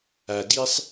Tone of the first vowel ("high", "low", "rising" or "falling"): low